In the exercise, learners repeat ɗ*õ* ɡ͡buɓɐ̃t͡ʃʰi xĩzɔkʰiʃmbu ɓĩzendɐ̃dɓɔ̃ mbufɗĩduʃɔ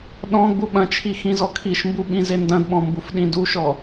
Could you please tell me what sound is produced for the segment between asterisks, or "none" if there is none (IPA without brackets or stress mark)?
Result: ɔ̃